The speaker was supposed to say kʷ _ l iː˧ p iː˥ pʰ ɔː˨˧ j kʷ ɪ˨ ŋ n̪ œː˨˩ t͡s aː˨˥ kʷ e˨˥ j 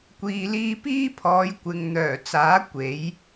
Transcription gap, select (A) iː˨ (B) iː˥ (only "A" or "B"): A